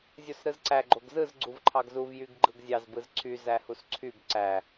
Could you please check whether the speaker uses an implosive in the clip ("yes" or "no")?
no